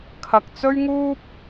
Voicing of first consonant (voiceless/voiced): voiceless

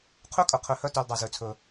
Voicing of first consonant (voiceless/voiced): voiceless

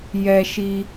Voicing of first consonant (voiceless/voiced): voiced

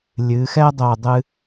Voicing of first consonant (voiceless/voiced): voiced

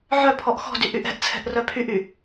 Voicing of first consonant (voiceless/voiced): voiced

